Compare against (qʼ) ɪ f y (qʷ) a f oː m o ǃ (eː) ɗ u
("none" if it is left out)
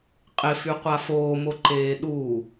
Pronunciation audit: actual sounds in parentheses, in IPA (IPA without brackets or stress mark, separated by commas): qʼ, qʷ, eː